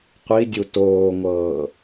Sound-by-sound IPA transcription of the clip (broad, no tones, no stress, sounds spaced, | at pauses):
qʷ i dʲ u t oː ŋʷ ɤː